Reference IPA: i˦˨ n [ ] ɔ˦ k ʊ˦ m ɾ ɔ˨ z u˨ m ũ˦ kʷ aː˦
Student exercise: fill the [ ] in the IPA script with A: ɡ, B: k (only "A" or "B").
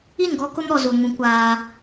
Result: A